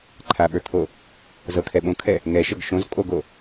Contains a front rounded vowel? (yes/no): no